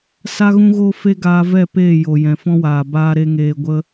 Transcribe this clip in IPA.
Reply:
s a˦ ɣ ũ˦ ɣ o˦ f e˦ ɡ aː˧ v ɛ˦˨ p eː˦˨ j o˨ j ɛ̃˨ f ɔ̃˦ w aː˨ b aː˦ ɾ e˦ ŋ eː˧ ɡʷ ə˦

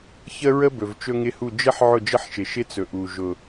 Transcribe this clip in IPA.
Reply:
ç ə˦ ɹ ə˦ b ɵ˨ v t͡ʃ ɵ˦ ŋ ɪ˦ h u˦˨ d͡ʒ ə˦ ħ ʕ ʊ˦˨ d͡ʒ ə˦ ħ ʃ ɪ˨ ʃ ɪ˦ t͡s ɵ˨ ʔ u˨ ʒ ʊ˨

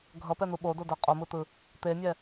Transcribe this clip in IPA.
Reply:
ɡʱ ʌ p ɛ n̪ u ɓ o d o d ɛ qʼ o m ɯ t̪ ɯ | t̪ e mʲ ɛ

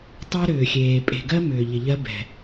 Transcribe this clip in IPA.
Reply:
tˤ ɜ˦ ɾ ʏː˨ xʲ eː˨ pʼ e̤˨ ɡ ɜ˦ m ʏː˨ ʎ ɪ˨ ʎ ɜ˦ b ɛ̤˨

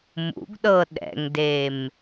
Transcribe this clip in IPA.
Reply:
m ṵ ɡ ɗ ɤ ɗ ɛ̰ ŋ d e m

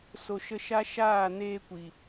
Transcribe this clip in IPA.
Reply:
s o˧ ʃ ə˦ ʃ a˦ ʃ aː˦˨ n eː˧ kʷ i˨

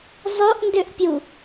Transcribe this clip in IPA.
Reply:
zˤ o ʔ n d ø ʔ pʲ u

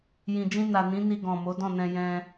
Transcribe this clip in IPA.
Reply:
j ĩ˨ d͡ʒ ĩ˧ n a˨ n ĩ˨˦ n i˧ ɡ ɔ̃˨ m o˨˦ d ɔ̃˦˨ n ɛ̃˧ j ɛ̃˧

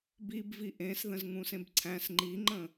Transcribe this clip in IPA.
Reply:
b i b v i ʔ ẽ s ð ə̃ z ŋ ũ s ẽ b ǀʰ æ̃ s ŋ͡ǃ i ŋ͡ǃ ə̃

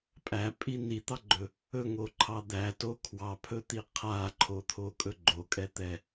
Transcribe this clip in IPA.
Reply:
pʼ æ pʼ i n i t̪ ɑ ɡ͡ǃ ɵ | ɵ ŋ o ǃʰ ɑ d̪ æ t o kʰ w ɑ pʰ ɵ t̪ i qʰ a ǃʰ o t̪ʰ o kʼ ɵ ɡ͡ǃ o kʼ ɛ t̪ ɛ

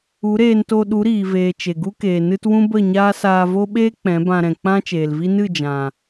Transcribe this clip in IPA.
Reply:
u˨˦ ɾ eː˧ n t o˧ ɗ u˨˦ ɾ iː˨ v eː˨ t͡ʃ e˨ ɡ u˦ k eː˨ n ɨ˦ t w ũ˦ b ə˦˨ ɲ aː˦ s aː˧ v o˦ ɓ eː˦ k͡p ɛ̃˨˦ b ã˧ ɾ ɛ̃˨ k͡p ã˦ t͡ʃ eː˨ l v i˦ n ɨ˦˨ d͡ʒ ã˨

